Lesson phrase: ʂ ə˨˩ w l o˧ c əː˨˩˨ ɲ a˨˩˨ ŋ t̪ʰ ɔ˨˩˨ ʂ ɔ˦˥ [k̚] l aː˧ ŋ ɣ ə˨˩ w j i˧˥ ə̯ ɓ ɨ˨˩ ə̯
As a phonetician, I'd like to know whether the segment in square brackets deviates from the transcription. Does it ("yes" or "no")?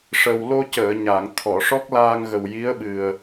no